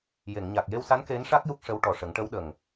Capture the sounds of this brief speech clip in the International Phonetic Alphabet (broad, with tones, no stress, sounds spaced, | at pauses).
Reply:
j e˨˩˨ ŋ ɲ a˨˩ k̚ j e˧ w s a˧˥ n k e˧˥ n ʂ a˦˥ k̚ j u˦˥ k̚ ʂ ə˧˥ w ʈ ɔ˨˩ ʂ ə˨˩˦ ŋ ʈ ə˧˥ w ɗ ə˨˩ ŋ